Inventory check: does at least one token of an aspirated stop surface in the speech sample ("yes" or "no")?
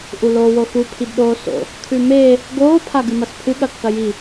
yes